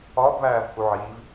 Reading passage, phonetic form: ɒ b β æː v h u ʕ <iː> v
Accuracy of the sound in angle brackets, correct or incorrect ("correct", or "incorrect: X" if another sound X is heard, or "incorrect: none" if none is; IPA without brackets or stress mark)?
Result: correct